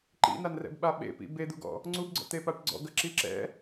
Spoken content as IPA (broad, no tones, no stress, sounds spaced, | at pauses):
ǃ ḭ n a n r ɛ̰ b ɓ a ɓ ḛ p ḭ b e d̪ u ɡ ɔ̰ | ŋ͡ǀ u b ɡ͡ǀ ɔ̰ t̪ e p a ʈ ɡ͡ǀ ɔ̰ ɡ ɐ ǁ i ǁ ɛ̰